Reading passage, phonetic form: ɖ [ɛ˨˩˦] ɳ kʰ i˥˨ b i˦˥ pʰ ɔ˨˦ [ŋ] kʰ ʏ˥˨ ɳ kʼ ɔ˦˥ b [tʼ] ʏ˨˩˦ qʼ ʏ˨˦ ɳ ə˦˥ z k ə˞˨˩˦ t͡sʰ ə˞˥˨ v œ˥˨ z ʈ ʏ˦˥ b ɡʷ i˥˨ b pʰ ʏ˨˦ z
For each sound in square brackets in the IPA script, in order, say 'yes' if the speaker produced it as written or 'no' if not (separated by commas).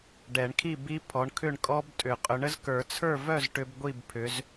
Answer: yes, no, yes